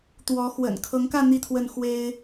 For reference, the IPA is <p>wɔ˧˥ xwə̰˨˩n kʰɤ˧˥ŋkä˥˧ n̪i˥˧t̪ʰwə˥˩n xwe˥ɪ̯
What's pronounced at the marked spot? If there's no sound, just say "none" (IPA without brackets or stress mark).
t̪